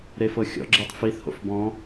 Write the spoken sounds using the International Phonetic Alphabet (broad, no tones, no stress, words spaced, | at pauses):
ɾefɤxʲɔ̰ɡ͡ǁetˤ fiθho̰f bɔ̃